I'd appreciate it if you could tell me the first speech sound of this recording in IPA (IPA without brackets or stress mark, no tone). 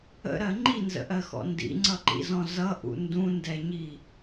ə̰